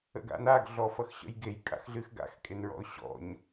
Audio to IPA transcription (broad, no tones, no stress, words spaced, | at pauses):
ə̰ɡa̰naɡ ɮɔfʌxɕə̰jɡej kʼa̰xɮɨxɡa̰x kʼenɹɔ̰ʊ̯ɕɔ̰ɲ